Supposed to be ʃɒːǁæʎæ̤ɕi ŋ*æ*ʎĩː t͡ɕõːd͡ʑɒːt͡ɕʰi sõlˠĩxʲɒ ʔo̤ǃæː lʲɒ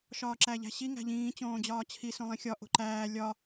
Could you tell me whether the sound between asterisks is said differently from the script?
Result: yes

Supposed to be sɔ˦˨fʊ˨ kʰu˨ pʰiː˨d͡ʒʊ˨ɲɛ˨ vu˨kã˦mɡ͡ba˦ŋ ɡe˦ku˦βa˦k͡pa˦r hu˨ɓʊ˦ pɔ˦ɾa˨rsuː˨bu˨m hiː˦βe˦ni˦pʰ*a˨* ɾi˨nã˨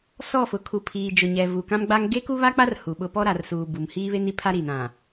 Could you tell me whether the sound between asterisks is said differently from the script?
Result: yes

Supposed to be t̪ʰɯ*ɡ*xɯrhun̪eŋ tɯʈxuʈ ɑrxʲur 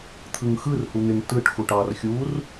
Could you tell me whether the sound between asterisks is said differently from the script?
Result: yes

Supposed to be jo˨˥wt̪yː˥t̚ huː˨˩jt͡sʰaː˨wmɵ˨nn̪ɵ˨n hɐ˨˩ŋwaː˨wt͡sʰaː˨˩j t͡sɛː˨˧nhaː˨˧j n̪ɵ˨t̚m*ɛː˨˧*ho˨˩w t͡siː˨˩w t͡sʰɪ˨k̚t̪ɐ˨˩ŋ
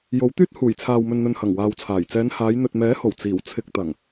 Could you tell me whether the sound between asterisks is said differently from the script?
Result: yes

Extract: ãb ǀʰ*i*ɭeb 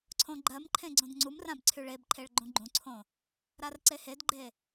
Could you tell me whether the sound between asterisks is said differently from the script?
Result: yes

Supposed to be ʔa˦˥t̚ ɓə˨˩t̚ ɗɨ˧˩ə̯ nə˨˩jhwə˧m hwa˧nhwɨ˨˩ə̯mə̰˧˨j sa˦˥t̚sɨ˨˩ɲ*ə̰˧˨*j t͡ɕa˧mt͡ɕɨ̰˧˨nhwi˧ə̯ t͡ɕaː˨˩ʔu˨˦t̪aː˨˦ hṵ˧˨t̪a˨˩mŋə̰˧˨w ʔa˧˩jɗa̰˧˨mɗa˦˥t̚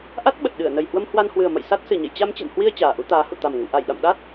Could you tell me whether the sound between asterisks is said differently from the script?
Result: no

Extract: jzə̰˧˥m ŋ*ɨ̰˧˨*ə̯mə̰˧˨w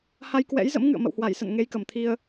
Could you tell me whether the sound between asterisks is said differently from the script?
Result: no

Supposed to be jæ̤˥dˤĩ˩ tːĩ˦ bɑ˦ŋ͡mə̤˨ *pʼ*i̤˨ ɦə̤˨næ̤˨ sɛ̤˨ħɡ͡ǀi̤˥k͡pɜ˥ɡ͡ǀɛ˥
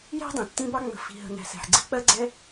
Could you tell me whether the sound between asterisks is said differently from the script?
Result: yes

